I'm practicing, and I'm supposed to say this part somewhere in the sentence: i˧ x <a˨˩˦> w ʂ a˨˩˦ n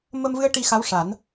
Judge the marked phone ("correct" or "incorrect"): incorrect